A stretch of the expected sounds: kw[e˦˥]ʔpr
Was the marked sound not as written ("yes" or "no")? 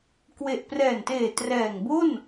yes